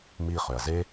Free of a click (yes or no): yes